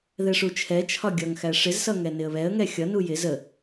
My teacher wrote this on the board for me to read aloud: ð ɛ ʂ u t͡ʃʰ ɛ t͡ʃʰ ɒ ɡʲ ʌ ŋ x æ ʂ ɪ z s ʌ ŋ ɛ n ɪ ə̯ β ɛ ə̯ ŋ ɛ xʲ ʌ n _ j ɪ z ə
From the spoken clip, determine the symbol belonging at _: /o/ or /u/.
u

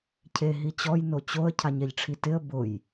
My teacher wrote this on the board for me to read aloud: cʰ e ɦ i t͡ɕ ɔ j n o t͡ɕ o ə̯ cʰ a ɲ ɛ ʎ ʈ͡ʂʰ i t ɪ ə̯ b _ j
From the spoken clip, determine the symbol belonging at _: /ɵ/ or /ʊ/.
ʊ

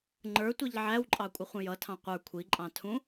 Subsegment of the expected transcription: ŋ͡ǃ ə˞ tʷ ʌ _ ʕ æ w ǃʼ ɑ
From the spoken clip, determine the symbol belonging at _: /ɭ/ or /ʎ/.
ʎ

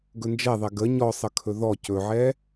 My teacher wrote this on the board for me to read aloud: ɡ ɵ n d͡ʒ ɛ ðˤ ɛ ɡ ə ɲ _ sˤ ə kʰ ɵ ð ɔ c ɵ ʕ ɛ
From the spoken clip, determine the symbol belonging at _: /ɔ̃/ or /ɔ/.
ɔ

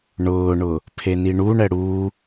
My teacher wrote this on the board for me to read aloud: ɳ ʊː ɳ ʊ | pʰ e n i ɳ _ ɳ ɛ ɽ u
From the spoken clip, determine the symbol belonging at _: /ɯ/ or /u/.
u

